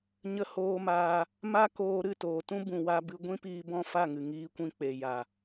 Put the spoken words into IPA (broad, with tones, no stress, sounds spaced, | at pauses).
ɲ ə˧ h oː˧ m aː˧ | m a˦ k oː˧ ɾ ɨ˦˨ t oː˨ t ũ˦ b ũ˨ w a˧ b ɨ˧ ɡʷ ĩ˦ p iː˧ b ɔ̃˦˨ f a˦˨ ŋ ɨ˨ ŋ iː˦ kʷ ĩ˦ k͡p e˨ j a˨